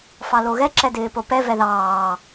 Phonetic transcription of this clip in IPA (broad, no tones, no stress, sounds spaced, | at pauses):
f ɑ l o ɣ ɛ ǁ ɛ d ɪː p o p ɛ v ɛ ð ɑː